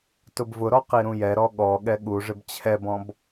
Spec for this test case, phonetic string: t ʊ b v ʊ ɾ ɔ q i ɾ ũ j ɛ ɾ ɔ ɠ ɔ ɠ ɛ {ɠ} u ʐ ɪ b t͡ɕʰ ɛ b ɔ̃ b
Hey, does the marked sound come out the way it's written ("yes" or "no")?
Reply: yes